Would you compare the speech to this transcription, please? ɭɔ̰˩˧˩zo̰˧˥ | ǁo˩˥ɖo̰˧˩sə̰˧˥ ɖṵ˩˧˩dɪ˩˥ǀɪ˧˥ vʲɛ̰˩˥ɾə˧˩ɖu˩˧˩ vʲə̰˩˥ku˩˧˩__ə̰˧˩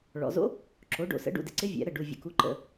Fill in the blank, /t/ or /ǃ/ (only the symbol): ǃ